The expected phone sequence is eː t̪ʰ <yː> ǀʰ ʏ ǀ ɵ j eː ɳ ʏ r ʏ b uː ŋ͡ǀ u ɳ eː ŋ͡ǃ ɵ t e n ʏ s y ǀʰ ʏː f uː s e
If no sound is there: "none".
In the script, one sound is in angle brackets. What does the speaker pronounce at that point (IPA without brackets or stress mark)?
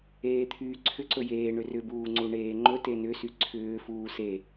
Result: yː